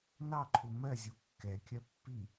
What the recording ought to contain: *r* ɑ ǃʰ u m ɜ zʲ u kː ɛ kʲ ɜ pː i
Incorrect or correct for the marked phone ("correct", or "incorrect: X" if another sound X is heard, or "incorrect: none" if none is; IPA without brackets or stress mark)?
incorrect: n